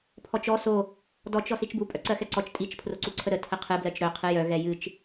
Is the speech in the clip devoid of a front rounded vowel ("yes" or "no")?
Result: no